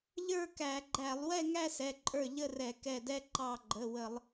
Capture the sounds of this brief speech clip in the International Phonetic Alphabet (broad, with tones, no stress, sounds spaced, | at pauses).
ʎ ə˞˥˧ k æ˧˩˧ ɡ͡ǃ æ˧˩˧ lˠ w ɛ˥˧ ŋ æ˥˧ s ɛ˩˧˩ ǃʼ ə˞˧˩ ʎ ə˥˧ r ɛ˧˩˧ k ɛ˧˩ d ɛ˥˧ ǃ ɑ˧˩ ɡ͡ǃ ə˩˧˩ w ə˧˩˧ lˠ